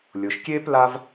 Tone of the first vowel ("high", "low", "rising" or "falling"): low